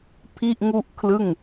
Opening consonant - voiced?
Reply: no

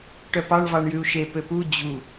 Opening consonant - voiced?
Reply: no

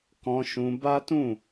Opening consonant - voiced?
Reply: no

